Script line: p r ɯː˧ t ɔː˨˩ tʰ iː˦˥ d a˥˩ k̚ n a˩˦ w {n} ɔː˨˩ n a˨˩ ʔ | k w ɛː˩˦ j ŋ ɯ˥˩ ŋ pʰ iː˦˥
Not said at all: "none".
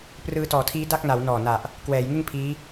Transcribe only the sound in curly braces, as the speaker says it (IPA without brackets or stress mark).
n